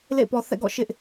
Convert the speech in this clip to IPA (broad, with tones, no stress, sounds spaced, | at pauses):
l ḛ˦˨ ɪ̯ p ɔ˨ θ ɛ̰˦˨ ɡ ɔ̰˦˨ ʃ ɪ˦ ʔ